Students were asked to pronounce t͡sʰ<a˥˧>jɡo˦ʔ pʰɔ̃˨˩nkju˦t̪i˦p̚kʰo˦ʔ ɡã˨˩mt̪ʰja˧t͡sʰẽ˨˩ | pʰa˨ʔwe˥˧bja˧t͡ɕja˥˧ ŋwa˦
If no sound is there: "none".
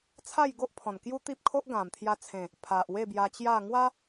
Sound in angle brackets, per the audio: a˥˧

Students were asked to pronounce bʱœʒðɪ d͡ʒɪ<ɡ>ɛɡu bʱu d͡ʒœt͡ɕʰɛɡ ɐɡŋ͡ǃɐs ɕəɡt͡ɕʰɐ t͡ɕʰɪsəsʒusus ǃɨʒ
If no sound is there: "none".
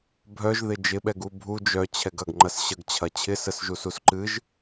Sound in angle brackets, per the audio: ɓ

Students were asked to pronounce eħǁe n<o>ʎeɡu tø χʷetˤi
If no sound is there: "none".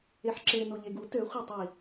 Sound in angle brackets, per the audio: o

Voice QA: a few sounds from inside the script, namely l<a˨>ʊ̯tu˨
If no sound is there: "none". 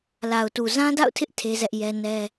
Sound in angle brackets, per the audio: a˨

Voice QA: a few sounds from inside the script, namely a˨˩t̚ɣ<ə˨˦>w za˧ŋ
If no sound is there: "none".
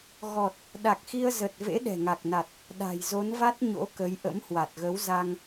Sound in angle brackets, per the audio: ə˨˦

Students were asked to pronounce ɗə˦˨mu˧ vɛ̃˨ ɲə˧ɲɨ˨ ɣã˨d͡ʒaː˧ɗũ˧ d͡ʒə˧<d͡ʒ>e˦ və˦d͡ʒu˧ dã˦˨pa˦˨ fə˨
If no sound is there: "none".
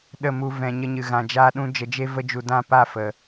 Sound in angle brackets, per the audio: d͡ʒ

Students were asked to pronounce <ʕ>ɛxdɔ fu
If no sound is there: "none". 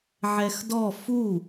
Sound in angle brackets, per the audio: ʕ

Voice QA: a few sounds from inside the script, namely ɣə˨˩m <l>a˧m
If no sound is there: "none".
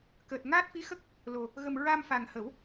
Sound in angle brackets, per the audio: ɹ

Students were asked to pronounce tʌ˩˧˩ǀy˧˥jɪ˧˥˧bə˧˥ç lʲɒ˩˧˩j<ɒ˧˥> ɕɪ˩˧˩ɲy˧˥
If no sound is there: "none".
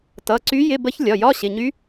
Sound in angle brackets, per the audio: ɒ˧˥˧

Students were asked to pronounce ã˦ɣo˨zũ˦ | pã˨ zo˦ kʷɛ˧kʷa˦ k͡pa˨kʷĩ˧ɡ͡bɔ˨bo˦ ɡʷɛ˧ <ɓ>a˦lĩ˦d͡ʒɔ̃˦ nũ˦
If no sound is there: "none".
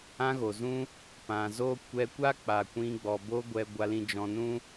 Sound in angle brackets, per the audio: ɡʷ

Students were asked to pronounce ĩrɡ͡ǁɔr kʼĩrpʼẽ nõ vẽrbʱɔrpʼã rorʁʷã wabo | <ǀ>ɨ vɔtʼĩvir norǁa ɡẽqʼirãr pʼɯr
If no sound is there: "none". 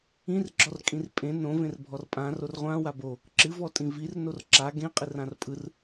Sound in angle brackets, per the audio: ǁ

